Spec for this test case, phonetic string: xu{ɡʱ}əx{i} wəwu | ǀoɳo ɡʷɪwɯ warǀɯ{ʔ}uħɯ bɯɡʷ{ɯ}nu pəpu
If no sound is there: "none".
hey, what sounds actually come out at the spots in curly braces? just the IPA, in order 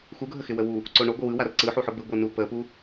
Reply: ɡʱ, ɪ, ħ, ɯ

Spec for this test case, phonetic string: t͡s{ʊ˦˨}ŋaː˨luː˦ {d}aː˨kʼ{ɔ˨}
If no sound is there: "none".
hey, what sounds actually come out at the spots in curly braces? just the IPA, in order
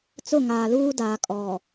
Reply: ʊ˦˨, d, ɔ˨

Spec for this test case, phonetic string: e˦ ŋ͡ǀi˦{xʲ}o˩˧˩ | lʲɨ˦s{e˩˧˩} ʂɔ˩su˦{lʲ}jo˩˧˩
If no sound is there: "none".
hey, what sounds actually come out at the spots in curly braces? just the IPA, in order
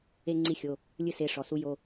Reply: xʲ, e˩˧˩, none

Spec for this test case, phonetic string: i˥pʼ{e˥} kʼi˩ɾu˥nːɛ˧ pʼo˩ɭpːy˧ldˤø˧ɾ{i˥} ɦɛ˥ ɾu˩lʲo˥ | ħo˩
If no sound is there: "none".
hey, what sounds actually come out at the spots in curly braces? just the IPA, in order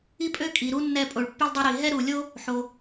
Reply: ø˥, i˩

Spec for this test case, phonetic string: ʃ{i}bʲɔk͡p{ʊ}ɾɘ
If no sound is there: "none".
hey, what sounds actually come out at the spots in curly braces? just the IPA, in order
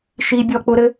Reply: i, ʊ

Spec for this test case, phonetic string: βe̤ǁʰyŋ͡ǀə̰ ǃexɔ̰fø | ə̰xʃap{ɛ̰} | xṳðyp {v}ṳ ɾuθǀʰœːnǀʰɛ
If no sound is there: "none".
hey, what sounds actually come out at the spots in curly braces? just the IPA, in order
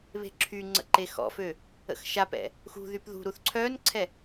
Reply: ɛ̰, ð

